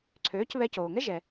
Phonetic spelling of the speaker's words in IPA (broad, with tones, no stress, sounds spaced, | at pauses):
ǀʰ øː˩˥ c β ɛ˧ c oː˩ ŋ ɛ˥ ʒ ɛ˩